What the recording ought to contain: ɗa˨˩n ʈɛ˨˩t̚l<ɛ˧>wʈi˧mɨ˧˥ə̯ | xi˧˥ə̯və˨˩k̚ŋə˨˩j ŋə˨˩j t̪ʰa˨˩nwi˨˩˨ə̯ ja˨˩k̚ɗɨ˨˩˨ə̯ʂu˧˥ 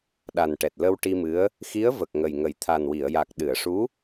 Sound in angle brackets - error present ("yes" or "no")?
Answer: yes